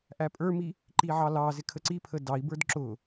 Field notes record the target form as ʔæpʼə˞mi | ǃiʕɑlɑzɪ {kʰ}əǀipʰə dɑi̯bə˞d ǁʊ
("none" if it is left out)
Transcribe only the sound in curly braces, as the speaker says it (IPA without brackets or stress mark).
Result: kʰ